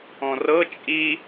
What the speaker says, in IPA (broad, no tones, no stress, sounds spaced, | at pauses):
ɔ̃ r ɤ t͡ʃʼ i